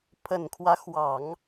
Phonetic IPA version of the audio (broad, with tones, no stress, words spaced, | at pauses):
pʰə˨˩nkʰwä˦xwɑ˨˩˦ŋ